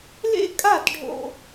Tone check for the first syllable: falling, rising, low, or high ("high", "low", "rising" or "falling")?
high